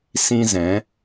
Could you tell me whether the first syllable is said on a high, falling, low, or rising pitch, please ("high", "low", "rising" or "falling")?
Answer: high